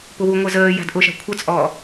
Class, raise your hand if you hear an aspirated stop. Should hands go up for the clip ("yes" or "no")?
yes